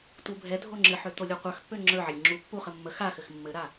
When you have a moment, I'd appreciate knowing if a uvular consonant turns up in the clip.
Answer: yes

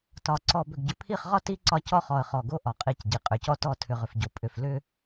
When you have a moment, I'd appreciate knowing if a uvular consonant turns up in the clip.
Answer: yes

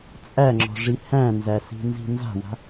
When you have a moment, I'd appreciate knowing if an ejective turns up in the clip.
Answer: yes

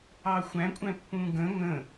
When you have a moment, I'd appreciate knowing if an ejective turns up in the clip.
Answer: yes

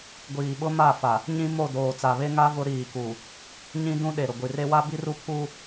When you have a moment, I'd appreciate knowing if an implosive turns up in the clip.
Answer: yes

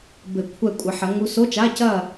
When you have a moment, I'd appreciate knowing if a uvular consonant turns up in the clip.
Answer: no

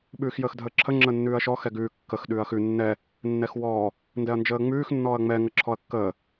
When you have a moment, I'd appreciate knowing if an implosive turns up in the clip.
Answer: yes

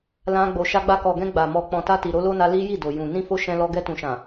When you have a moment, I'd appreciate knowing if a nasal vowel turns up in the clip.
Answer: yes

